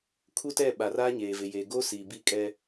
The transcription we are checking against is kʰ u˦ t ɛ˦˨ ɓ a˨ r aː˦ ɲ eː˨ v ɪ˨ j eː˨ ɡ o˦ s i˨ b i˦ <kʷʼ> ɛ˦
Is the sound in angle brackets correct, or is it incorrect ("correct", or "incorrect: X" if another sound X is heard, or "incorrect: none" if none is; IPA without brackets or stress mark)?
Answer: incorrect: kʼ